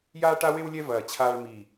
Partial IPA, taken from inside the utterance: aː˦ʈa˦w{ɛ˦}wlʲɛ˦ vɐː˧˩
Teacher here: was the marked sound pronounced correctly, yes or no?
no